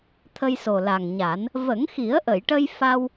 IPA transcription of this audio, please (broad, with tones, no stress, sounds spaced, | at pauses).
t̪ʰ ə˧ j s o˨˩ l a˨˩ ŋ ɲ a˨˩˦ n | v ə˨˩˦ ŋ x i˨˩˦ ə̯ ʔ ə˨˩˨ j ʈ ə˧ j f a˧ w